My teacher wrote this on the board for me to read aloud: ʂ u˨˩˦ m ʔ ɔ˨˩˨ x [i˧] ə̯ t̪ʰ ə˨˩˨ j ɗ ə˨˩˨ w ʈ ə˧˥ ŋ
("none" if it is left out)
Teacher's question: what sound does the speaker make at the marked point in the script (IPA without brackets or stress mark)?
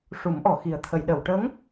i˨˩